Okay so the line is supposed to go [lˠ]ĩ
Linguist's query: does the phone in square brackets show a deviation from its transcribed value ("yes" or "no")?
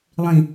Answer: no